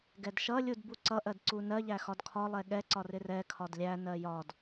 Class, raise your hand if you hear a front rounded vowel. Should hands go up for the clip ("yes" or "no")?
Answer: no